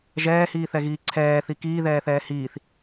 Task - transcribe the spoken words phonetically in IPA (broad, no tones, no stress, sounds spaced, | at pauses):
ʒ ɛː h iː θ ɛ ɣ iː ǀʰ ɛː θ i k iː ð ɛː θ ɛː h iː θ